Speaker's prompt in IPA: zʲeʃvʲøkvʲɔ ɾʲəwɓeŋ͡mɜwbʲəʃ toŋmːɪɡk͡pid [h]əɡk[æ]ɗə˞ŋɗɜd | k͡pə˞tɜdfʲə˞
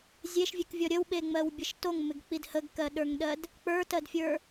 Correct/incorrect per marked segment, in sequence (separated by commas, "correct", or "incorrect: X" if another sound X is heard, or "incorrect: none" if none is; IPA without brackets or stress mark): correct, incorrect: ɜ